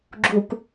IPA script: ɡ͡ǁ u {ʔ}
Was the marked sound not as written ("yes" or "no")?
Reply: yes